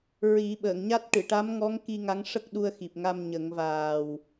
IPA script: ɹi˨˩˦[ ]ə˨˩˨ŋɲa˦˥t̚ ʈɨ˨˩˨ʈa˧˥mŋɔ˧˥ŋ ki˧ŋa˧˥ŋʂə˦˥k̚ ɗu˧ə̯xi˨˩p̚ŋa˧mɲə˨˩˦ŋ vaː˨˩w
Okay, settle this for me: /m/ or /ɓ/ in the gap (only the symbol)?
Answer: ɓ